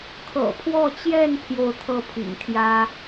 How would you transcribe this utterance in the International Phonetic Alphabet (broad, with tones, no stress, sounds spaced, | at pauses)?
kʰ ɤ̰˨˩ pʰ w ɔ˥˧ t͡ɕ j ɛ˥˧ n pʰ j o˥˧ ʊ̯ t̪ʰ ɤ˥˩ pʰ ḭ˨˩ ŋ t̪ʰ j ä˥